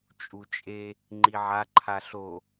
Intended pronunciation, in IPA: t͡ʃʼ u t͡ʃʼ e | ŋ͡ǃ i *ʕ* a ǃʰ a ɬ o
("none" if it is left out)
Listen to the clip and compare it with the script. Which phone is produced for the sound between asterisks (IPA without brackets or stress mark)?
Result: ʕ